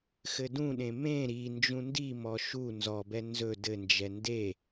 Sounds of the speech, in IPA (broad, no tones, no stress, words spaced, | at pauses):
xɘdũɗẽ mẽ ɾi nd͡ʒũndimɔ ʃu nzɔbɛ nzɵ dɘnd͡ʒɛ nde